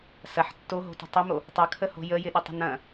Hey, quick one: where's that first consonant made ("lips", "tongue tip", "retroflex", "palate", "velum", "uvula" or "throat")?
tongue tip